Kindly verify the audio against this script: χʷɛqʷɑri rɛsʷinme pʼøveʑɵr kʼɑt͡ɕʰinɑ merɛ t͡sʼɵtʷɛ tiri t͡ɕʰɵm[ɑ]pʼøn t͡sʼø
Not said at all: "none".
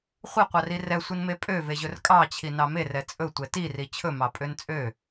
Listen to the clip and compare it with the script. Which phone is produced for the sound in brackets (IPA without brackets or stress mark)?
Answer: ɑ